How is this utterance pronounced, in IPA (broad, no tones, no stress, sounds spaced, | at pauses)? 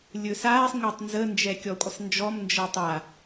lʲ ɵ s aː sˤ ŋʷ a tˤ n z ə n d͡ʒ ɛ kʲ ɔ kʷʼ ə sˤ n d͡ʒ ɔ m n d͡ʒ əː tˤ a